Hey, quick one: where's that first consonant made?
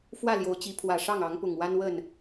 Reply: lips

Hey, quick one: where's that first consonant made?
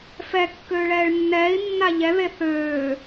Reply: lips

